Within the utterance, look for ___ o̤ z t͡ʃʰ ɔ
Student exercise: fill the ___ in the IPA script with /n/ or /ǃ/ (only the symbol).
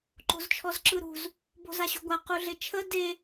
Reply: ǃ